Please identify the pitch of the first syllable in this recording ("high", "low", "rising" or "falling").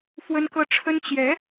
high